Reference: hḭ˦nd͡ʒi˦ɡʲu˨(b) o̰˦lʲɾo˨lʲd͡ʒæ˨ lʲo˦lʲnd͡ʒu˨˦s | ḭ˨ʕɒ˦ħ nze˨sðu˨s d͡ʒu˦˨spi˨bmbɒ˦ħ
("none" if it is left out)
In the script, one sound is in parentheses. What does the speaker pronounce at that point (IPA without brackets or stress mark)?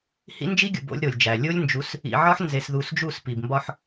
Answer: b